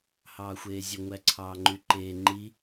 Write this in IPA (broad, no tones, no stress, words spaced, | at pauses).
hɑːxʷeːzʲø ŋʷæǀʰɑːŋ͡ǃyǃeː ŋ͡ǃi